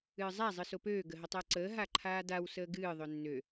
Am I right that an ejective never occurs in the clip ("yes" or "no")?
yes